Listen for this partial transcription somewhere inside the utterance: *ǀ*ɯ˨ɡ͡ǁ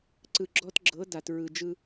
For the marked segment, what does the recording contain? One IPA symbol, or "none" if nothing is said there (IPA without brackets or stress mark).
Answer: ǀ